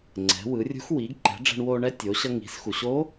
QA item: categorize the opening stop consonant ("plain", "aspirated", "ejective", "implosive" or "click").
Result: click